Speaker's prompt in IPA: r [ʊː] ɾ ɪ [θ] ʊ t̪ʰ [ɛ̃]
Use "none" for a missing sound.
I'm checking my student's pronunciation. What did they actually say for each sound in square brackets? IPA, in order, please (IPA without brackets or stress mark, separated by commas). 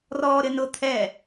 ɔː, n, ɛ